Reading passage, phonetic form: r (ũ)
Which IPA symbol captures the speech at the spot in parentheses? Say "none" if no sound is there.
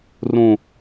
ũ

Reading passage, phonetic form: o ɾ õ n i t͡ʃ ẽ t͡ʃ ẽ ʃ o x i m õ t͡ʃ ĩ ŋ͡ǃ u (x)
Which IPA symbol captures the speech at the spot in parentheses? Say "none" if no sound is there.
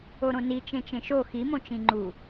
none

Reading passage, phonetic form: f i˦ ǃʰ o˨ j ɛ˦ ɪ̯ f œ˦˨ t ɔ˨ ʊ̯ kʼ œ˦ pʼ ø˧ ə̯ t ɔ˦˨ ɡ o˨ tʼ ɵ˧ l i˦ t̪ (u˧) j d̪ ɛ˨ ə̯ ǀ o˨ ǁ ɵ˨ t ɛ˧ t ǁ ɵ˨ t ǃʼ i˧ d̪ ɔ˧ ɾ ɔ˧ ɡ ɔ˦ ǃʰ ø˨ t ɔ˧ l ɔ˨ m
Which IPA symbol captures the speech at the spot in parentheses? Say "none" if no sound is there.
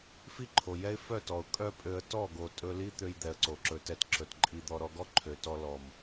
ø˧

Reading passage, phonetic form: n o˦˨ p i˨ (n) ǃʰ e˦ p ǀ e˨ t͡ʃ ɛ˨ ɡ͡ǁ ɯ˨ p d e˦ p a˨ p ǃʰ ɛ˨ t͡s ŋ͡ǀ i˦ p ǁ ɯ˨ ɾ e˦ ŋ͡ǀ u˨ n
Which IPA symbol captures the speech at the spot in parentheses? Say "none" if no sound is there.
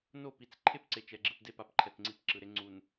t͡s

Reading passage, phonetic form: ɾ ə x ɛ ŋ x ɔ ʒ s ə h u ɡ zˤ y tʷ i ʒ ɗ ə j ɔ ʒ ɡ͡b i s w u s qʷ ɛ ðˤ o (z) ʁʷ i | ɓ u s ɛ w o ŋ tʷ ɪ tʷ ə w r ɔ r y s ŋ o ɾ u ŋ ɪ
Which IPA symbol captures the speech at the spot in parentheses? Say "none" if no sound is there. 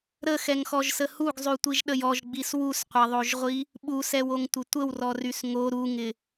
ʒ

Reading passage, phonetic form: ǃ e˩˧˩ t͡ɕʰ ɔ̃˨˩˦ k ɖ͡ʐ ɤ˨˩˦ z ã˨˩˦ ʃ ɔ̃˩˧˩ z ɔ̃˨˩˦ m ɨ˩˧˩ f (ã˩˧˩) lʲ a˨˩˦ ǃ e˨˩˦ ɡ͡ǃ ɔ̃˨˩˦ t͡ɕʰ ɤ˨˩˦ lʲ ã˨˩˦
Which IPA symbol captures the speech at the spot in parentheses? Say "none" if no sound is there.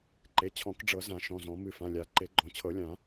ã˩˧˩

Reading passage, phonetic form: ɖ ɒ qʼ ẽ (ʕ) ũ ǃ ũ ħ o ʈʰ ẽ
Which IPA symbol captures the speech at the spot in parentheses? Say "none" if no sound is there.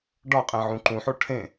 ʕ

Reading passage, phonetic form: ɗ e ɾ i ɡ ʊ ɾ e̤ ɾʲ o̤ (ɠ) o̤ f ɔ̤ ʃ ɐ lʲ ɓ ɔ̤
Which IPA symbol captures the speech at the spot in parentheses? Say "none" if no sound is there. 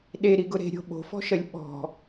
ɓ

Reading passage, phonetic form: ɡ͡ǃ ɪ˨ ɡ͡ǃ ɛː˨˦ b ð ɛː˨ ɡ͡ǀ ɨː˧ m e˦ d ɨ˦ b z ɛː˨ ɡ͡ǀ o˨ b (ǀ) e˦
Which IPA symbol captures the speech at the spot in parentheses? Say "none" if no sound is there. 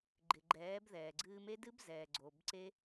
ǀ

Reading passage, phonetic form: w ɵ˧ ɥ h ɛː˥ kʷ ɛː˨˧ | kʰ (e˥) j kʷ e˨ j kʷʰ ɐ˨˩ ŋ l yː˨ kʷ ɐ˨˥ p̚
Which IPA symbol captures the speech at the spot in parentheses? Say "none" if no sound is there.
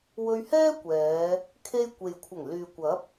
e˧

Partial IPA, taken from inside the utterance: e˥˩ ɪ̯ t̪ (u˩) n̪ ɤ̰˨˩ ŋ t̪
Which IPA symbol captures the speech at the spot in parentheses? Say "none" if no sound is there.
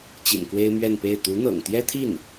u˧˥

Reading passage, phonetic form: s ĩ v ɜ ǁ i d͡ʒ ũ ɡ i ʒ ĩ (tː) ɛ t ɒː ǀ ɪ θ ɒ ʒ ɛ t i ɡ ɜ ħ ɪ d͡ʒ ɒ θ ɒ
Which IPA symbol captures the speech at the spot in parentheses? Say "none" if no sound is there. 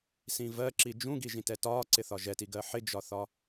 t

